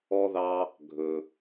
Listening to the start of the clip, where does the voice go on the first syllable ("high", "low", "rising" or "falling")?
high